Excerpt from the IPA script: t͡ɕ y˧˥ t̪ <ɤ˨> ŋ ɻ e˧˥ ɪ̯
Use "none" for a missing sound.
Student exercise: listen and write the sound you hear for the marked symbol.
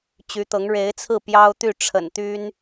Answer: ɤ˧˥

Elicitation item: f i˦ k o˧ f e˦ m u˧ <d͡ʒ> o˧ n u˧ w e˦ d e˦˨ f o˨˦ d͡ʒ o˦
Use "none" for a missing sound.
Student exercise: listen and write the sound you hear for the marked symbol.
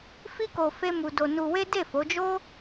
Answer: d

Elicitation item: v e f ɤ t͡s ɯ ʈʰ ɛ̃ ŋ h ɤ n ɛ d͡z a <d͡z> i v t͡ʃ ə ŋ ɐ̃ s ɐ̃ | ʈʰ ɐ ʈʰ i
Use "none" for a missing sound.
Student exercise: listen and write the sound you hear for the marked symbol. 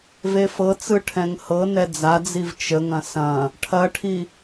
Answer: d͡z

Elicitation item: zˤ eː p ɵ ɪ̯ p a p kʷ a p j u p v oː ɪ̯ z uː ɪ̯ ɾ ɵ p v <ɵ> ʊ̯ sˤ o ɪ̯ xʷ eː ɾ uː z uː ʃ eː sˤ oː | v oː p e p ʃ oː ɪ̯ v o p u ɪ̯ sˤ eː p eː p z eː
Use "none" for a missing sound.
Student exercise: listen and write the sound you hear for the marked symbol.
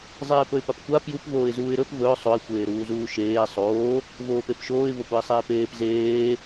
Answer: ɵ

